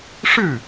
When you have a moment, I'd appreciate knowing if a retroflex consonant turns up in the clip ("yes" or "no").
yes